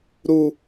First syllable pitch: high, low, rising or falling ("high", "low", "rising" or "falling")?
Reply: low